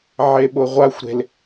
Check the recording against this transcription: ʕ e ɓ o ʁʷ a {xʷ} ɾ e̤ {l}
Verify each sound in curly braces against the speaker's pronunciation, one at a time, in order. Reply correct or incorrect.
correct, correct

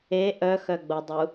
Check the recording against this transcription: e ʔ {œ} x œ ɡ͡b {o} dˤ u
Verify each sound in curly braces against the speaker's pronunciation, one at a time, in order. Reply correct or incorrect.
correct, correct

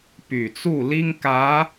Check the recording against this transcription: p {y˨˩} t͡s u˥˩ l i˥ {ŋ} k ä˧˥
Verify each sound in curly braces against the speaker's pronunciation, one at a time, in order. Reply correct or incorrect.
correct, correct

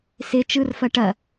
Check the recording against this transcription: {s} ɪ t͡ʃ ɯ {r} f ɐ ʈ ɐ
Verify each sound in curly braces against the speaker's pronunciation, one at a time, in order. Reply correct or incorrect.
correct, correct

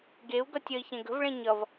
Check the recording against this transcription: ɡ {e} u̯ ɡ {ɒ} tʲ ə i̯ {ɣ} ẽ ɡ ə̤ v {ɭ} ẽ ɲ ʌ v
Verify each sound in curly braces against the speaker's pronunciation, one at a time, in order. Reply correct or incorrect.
correct, incorrect: ʌ, incorrect: ç, correct

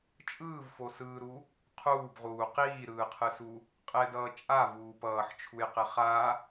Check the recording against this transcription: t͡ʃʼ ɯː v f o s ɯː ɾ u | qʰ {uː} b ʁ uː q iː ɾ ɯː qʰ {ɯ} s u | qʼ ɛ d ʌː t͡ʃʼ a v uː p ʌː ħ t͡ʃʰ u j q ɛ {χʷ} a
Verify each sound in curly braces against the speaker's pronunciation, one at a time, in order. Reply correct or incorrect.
correct, correct, incorrect: χ

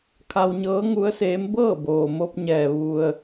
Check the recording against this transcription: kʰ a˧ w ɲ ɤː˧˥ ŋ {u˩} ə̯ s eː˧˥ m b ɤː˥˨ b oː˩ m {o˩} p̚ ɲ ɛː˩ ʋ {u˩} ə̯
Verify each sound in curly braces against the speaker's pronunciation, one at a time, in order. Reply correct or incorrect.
incorrect: u˧˥, incorrect: o˧, correct

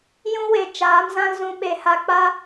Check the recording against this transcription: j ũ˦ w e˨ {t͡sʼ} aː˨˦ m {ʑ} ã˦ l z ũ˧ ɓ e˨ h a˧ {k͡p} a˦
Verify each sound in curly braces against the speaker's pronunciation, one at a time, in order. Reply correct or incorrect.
incorrect: t͡ʃ, incorrect: z, correct

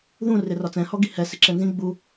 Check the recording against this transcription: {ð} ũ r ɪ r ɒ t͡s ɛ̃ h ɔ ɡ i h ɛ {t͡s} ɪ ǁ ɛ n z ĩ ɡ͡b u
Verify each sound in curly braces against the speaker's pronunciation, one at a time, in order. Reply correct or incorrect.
correct, incorrect: s

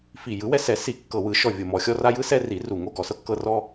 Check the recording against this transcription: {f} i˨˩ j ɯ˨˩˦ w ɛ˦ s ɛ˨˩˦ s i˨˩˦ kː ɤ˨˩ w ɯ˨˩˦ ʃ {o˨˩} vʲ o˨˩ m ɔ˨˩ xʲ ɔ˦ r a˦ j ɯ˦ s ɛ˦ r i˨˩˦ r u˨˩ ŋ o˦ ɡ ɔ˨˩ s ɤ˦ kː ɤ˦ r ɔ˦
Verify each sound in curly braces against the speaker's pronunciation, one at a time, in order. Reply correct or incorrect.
correct, incorrect: ɔ˨˩

